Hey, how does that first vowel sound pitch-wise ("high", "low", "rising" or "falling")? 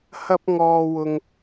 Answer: high